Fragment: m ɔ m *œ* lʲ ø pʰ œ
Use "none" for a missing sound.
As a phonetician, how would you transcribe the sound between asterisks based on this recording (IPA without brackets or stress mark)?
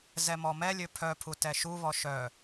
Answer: ɛ